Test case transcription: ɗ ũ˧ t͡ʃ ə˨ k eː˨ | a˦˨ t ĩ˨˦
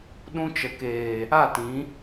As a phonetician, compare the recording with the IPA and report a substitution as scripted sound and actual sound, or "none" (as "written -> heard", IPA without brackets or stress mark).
none